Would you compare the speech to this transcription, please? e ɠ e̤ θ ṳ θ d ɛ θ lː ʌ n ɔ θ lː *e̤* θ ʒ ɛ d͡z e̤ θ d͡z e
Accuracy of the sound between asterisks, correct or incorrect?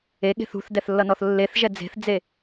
incorrect: e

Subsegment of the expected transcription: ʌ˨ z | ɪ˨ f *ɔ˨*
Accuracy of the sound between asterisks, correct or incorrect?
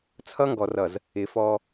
incorrect: ɔ˦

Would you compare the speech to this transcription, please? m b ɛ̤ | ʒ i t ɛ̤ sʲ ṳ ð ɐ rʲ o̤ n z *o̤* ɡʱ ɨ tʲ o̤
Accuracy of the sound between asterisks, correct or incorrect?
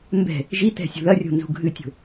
incorrect: ṳ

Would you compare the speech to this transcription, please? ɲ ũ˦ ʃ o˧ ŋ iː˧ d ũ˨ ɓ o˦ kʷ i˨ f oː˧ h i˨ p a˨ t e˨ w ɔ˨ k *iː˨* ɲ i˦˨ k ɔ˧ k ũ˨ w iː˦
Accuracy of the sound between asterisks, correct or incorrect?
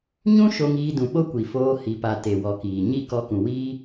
correct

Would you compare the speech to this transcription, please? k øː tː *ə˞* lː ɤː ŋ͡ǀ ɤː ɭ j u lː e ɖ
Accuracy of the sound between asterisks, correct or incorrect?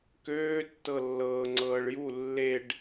incorrect: ɤ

